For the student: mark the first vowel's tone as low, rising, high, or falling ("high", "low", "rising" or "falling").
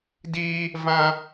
high